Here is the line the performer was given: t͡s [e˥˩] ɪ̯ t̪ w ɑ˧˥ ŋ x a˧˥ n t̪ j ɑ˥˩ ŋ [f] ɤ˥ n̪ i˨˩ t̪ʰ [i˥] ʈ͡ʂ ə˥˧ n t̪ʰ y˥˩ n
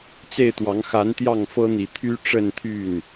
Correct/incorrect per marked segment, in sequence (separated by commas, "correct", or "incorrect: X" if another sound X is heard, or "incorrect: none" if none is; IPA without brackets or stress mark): correct, correct, incorrect: y˥